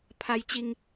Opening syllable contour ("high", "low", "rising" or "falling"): high